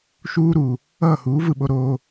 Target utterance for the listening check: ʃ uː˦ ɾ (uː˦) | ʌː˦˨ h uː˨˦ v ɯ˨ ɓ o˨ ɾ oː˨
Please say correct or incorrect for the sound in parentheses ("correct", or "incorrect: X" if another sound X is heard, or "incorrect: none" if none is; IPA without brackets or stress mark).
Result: incorrect: uː˨